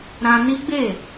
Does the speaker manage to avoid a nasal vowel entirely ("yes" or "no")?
no